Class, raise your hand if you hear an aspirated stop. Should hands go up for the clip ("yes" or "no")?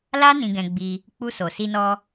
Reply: no